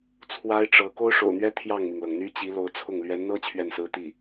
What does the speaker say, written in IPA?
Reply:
t͡sʰwa˥ɪ̯ʈ͡ʂɤ˧˥ ko˥ʊ̯ʂo̰˨˩ʊ̯n̪ɥɛ˥ t̪ʰjɑ˥˩ŋmi˩ŋlɤ˩ŋ n̪y˥t͡ɕi˧˥lo˧˥ʊ̯t͡sʰʊ˥˩ŋ lɥɛ˧˥nn̪ɤ˥ t͡ɕʰɥɛ˥˩nsɹ̩˥t̪i˥˩

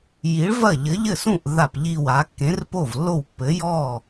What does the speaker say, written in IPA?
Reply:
ji˨˥ɭvɐ˥˩ ʎɘ˨˥ʎɘ˥˩sũ˥˩ʔ ða˥˩pʎi˥˩wa˨˥ kːẽ˨˥rpo˥˩vlːo˥˩wpːɘ˨˥ jɔ˥˩

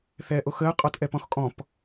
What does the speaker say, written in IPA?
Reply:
θɛːʔoxəː qʼɔtʔɛpɔ̃xkʼɔ̃p

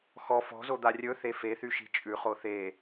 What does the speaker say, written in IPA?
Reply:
xɔ fɔ̤zod̪a rʲɵ θefeθy ʃi̤t͡ʃʼʉ χoθe

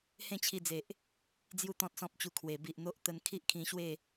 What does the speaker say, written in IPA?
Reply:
hẽ˥˧t͡ɕʰi˧d͡ze˨ʔ | d͡zju˦t̪ɔ̃˦t̚sɔ̃˦p̚t͡ɕu˧ kʰwe˨˩ bi˨ʔn̪o˦ʔ t̪ə˧nkʰi˦ʔkʰĩ˧ɕwe˥˧

